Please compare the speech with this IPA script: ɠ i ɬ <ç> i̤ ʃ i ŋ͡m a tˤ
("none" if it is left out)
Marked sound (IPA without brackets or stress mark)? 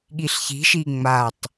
ç